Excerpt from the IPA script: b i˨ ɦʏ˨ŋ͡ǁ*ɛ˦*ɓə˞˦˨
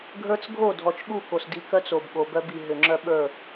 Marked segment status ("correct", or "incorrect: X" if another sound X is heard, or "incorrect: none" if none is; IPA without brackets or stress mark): incorrect: œ˦